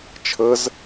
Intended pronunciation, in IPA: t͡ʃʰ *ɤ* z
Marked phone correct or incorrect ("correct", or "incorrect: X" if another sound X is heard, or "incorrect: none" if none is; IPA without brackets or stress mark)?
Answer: correct